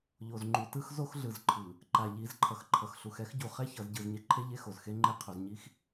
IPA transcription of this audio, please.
ʎ o˨ z ŋ͡ǃ u˨ t ɯ˦ x z o˦ x ɮ ɯ˨ z ǃʰ ɯ˨ | ǃ a˨ ʎ i˨˦ z ǃʰ ʌ˨ x ǃʰ ʌ˨ x ɬ u˨ x ɛ˦ x ɟ u˨ χ ɛ˦ ç ʌ˨ z ɟ ɯ˨ z ɲ e˨ ǃʰ e˦ ʎ e˦ x o˨ z x e˦ ŋ͡ǃ e˦ qʰ o˨ z ɲ i˦ x

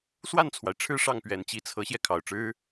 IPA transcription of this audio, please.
s w a˥˩ n t͡sʰ w a˩ ɪ̯ ʈ͡ʂʰ ɻ̩˥˧ ʂ ɑ˥˩ ŋ p ɥ ɛ˨˩ n t͡ɕ i˧˥ t͡sʰ ɤ˧˥ ɕ j ɛ˧ kʰ ɑ˨˩ ʊ̯ ʈ͡ʂ ɻ̩˥

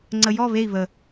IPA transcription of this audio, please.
ŋ͡ǀ ə j ɔ β e i̯ β ə

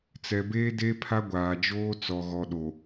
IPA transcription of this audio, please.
t͡s ɛ˨ b eː˦ d e˦ pʰ a˦ ɡʷ aː˨ d͡ʒ oː˦ t͡s ɔ˨ ɣ ɔ˨ ɗ o˨

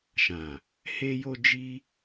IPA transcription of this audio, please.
ʃ ã˨ | h e˦ j o˦ d͡ʒ i˦

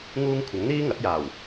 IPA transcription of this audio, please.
ŋ uː˥ ŋ kʷʰ ɐ˨˥ ŋ n̪ iː˥ ŋ ɐ˨˥ t̚ j aː˨˩ w

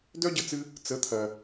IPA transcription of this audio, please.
d œ˦ ɟ ə˧ t͡s ɨ˧ | t͡s ə˨˦ t̪ʰ ɜ˨

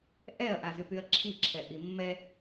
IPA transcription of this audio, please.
ʔ ɛ ɐ̯ ʔ a z y p y ɐ̯ ǁʰ i ǁʰ ɛ ʔ i mː ɛ

